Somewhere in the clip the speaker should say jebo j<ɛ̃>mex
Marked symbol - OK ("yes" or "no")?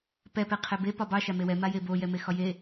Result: no